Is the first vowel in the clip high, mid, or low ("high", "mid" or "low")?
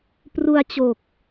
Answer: high